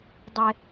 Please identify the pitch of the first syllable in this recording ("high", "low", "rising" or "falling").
high